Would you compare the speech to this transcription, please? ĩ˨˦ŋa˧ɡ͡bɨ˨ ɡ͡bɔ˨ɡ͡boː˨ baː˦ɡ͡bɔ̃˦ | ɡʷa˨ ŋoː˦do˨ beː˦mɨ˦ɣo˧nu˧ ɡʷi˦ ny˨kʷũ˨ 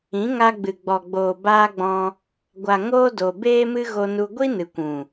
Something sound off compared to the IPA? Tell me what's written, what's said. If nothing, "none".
y˨ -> ɨ˨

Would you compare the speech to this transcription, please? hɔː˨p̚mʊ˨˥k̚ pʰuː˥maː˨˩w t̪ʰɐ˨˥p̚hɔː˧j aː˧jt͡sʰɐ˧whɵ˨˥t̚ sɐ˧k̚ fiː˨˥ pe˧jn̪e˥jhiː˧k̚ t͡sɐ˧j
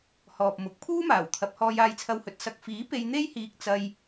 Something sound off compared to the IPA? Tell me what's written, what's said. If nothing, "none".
none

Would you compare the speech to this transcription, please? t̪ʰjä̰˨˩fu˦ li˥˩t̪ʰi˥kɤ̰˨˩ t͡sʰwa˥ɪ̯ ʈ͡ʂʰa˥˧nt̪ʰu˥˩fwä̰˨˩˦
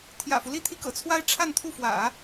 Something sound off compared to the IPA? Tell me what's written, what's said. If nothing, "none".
none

